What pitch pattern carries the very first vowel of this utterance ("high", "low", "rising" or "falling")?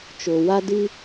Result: low